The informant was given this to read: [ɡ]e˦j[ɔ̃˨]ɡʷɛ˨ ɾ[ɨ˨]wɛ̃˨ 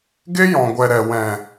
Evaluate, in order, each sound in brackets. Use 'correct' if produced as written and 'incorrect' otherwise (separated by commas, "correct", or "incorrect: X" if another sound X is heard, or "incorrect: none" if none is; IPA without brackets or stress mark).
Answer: correct, correct, incorrect: ɛ˨